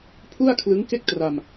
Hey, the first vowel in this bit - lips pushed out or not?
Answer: yes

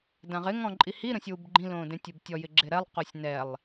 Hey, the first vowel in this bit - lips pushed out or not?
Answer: no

